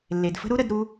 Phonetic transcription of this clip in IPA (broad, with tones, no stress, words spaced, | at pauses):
lːe˩dfə̤˥ ɾu˥ɾə˧dɾu˧